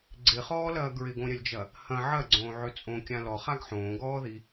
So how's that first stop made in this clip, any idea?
click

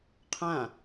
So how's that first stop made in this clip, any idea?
aspirated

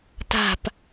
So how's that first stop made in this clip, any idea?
plain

